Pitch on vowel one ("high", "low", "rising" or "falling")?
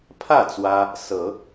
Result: falling